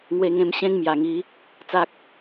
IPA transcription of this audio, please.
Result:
ŋ w e˧ ŋ ẽ˧ m ɕ ẽ˦ ŋ m j a˨˩ ŋ i˨˦ | t͡s a˦ k̚

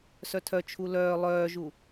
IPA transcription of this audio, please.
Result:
s œ tʰ œ t͡ʃʰ u l œː lˠ œː ʒ u

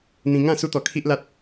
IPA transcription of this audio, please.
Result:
n̪ ĩ˧ ŋ ã˥˧ s u˧ t̪ ɔ˨˩ kʰ i˦ ʔ l a˦ t̚

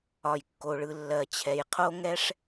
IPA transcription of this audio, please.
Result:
ɒ˩ j kː o˩ ɭ ɯ˩ lː ɜ˩ t͡ɕʰ ɛ˩ j qʰ o˥ ŋ ɛ˥ ʂ

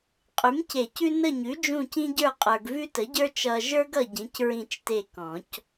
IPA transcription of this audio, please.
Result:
qʼ ʉ˩˥ m c e˨˩˦ c ʉ˦ n ə˦˨ ɲ ʉ˩˥ d͡ʒ ũ˦˨ c ĩ˦ ɟ ə˞˦˨ qʼ ə˞˨ ɡ v ʉ˦ t ə˩˥ ɟ ə˞˦ t͡ʃ ʌ˨ ʒ ə˞˦ ɡ ʌ˦˨ ɟ ĩ˩˥ c ɹ ĩ˦˨ t͡ʃ t e˦˨ k ɔ̃˨˩˦ c

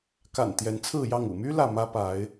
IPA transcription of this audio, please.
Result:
k a̰˨˩ n t̪ j ɛ˨˦ n t͡sʰ ɹ̩˥˨ j ɑ˥˨ ŋ ṵ˨˩ m y˦ l ä˥˨ m ä˦ p a˨˦ ɪ̯

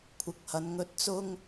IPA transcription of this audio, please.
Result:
kʷʰ ɪ˨ k̚ h ɐ˨˧ n ŋ ɵ˧ t̚ t͡s ʊ˥ ŋ

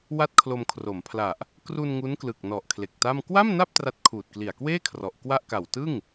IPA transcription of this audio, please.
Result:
w a˥˩ t̚ kʰ l o˧ m kʰ r o˩˦ m pʰ l a˨˩ ʔ | k r u˧ n ŋ u˦˥ n k l ɯ˨˩ k̚ n ɔ˨˩ ʔ kʰ l e˨˩ k̚ t a˥˩ m k w a˥˩ m n a˥˩ p̚ t r a˦˥ t̚ kʰ uː˨˩ t̚ k l i˨˩ a̯ k w eː˥˩ kʰ r ɔ˨˩ ʔ k w a˥˩ ʔ k a˨˩ w t ɯ˥˩ ŋ

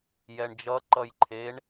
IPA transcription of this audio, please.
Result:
j ɛ ɳ d͡ʒ ʌ ǃ ʌ j ǃʰ e ɳ

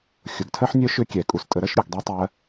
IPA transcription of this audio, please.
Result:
xʲ ʊ˨ ɡ tʰ ɜ˦ ħ nʲ œ˦ ʃ ʏ˦ kʲ ɛ˨ kʼ u˨ s tʼ ə˧ ɾ ɜ˦ ʃ ɾʲ u˦˨ ɡ dˤ ɛ˦ tˤ ɜ˧

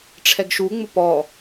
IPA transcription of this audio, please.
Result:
ʈ͡ʂʰ ɛ ɡ ʃ u ŋ͡m ʊ p ɔ

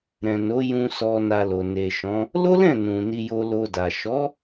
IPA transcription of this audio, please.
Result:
ɾ ɛ̃˨ n o˨˦ j ũ˧ s ɔ˧ n a˧ l o˨ n e˨ ʃ ɔ̃˨˦ | l o˦ l ɛ̃˦˨ n ũ˨ n i˧ j o˧ l o˧ d a˨ ʃ ɔ˨˦

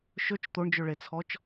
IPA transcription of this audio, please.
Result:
ʃ ɵ t͡ʃ t̪ o ɳ d͡ʒ ɵ ɭ e t͡sʰ ɔ t͡ʃ

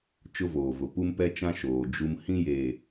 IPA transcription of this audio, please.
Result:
t͡ʃ ʊ˦ v oː˨ v ʊ˨ p u˦ m p ɛ˦ t͡ʃ ã˦ ʃ oː˨ d͡ʒ u˦ m h ĩ˦ j eː˨

